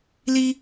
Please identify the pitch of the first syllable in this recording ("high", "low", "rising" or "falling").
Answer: high